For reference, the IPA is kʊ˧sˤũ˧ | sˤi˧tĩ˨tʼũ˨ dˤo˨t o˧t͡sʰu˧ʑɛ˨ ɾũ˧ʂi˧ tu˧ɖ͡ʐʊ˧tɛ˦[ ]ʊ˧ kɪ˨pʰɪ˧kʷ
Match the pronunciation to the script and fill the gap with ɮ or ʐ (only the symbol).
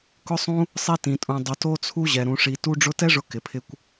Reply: ʐ